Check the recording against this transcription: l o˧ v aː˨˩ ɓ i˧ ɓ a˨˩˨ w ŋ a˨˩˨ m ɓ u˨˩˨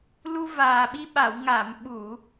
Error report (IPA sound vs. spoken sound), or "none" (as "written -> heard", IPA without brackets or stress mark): o˧ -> u˧